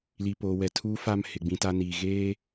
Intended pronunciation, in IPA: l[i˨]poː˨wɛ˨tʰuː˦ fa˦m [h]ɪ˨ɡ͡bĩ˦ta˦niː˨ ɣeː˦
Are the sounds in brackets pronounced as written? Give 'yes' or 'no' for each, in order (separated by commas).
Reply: yes, yes